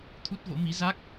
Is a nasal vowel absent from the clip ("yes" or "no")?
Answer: yes